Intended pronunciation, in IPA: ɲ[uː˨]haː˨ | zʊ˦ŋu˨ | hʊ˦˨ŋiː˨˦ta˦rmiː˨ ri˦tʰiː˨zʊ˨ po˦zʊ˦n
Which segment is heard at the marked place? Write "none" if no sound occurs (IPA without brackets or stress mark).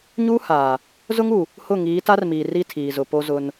uː˦